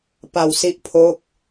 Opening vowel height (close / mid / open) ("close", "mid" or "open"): open